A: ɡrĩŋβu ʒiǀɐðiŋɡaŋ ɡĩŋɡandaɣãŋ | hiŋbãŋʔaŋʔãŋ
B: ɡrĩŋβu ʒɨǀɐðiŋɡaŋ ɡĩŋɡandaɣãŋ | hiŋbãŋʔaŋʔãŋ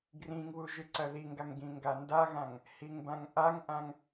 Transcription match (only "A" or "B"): B